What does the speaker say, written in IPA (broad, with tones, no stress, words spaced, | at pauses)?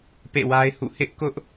pḛ˦˨wa˦ɪ̯hṵ˦˨ hɪ˦ʔkʊ˦ʔ